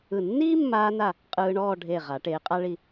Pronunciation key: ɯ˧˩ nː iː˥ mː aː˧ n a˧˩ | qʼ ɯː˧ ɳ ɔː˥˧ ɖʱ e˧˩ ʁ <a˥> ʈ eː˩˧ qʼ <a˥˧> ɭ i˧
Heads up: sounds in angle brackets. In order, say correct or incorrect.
incorrect, incorrect

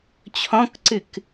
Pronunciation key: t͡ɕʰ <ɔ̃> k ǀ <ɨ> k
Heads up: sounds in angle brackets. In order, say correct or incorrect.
correct, correct

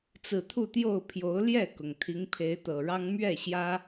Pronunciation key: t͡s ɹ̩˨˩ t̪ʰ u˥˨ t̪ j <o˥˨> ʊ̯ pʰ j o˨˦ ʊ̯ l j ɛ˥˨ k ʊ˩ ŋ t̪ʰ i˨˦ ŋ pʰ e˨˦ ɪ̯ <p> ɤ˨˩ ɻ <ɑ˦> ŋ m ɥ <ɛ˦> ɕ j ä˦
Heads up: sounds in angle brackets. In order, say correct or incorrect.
correct, incorrect, correct, incorrect

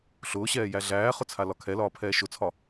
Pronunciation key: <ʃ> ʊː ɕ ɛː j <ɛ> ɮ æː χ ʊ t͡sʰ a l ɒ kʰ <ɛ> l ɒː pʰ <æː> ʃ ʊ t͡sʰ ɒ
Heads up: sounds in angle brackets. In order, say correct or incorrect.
incorrect, incorrect, correct, incorrect

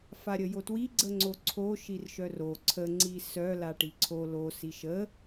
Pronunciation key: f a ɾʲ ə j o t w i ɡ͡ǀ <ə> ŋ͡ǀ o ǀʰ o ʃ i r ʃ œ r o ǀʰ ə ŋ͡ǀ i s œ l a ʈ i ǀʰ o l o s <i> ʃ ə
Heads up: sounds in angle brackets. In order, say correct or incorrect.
correct, correct

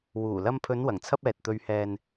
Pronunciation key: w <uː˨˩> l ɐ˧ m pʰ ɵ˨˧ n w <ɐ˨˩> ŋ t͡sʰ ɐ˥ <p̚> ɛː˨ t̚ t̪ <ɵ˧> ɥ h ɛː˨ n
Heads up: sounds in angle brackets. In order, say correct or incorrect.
correct, correct, correct, correct

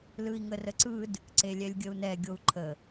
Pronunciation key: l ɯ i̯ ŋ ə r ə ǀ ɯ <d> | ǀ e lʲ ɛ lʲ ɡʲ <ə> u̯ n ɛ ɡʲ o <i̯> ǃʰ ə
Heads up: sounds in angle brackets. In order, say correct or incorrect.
correct, correct, incorrect

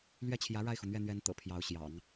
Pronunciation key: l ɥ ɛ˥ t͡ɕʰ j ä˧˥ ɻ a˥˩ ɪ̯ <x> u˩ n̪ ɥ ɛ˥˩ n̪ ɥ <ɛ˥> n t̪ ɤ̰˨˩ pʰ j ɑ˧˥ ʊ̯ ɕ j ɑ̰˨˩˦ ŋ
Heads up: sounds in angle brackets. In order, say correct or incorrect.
correct, incorrect

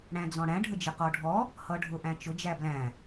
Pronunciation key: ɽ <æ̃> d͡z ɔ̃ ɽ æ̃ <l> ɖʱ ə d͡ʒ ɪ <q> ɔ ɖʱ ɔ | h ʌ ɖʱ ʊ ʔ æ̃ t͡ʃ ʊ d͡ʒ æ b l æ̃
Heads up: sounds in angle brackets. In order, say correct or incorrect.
correct, incorrect, correct

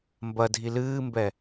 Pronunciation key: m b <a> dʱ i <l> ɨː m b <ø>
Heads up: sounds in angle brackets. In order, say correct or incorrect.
incorrect, correct, incorrect

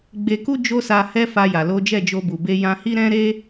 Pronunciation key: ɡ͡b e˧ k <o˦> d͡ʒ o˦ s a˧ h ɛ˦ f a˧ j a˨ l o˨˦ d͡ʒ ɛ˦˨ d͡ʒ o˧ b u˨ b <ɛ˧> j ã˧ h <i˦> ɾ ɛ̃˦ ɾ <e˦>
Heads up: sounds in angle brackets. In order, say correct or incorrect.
incorrect, incorrect, correct, correct

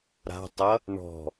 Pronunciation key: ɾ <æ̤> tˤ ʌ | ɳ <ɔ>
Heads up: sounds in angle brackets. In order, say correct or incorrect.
incorrect, incorrect

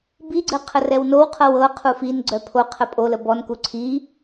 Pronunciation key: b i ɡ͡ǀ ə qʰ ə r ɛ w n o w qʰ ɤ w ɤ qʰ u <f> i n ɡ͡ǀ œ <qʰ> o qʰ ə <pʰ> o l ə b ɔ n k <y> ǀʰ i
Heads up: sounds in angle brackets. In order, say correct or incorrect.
correct, incorrect, incorrect, incorrect

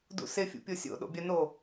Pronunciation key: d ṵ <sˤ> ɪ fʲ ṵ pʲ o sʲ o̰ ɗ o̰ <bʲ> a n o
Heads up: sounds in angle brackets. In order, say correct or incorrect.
incorrect, correct

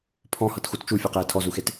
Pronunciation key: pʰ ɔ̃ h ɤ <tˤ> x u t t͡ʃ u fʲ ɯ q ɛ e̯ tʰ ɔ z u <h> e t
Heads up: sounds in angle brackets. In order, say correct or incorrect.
incorrect, incorrect

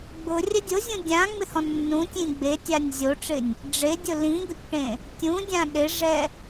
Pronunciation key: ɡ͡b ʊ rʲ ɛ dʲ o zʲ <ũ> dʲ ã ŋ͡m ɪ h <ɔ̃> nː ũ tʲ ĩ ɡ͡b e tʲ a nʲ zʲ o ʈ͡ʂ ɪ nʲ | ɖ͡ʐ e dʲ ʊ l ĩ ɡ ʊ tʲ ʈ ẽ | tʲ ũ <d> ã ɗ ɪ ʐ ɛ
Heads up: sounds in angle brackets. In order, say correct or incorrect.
correct, correct, incorrect

